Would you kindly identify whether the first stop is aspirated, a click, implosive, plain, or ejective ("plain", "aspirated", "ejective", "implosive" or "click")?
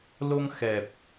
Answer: plain